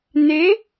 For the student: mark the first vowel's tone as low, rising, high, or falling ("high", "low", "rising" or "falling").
rising